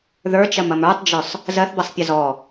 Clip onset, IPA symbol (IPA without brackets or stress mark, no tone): ð